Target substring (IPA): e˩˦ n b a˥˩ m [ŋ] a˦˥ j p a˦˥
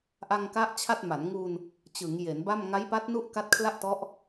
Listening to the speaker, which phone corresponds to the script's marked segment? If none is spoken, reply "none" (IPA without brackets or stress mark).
ŋ